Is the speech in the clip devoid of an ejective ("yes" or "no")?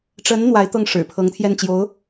yes